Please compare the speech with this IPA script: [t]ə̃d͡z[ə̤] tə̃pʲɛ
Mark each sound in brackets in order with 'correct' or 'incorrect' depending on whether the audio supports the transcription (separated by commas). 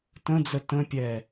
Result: correct, incorrect